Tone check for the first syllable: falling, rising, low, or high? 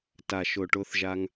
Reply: low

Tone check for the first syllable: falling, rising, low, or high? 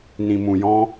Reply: low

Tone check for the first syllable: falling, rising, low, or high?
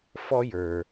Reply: high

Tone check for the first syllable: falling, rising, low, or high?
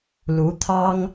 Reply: rising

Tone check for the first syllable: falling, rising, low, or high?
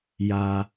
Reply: low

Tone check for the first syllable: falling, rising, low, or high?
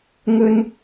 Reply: high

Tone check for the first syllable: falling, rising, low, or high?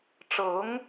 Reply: rising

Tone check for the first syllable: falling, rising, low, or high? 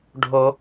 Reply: low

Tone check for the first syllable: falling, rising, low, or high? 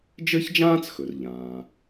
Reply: high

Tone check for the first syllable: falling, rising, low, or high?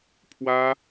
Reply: high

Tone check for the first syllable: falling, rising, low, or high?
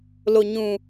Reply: low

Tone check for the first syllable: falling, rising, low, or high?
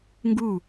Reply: falling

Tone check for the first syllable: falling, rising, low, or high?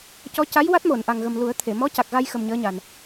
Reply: rising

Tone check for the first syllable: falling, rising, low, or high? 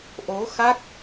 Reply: rising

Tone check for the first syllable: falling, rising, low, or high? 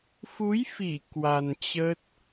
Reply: rising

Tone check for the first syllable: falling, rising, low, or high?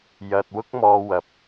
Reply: low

